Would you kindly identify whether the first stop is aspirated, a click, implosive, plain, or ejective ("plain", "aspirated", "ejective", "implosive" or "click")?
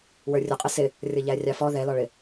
ejective